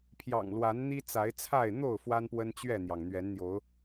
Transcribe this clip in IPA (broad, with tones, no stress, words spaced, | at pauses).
pʰjɑ̰˨˩ŋlwa˨˦n n̪i˦t͡sa˨˦ɪ̯t͡sʰa˥˨ɪ̯ n̪o˥˨ʊ̯ fwa˦npwə˦nt͡ɕɥɛ˥˨n̪jɑ˩ŋ n̪ɥɛ˨˦nn̪jo˨˦ʊ̯